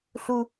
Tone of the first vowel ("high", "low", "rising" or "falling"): high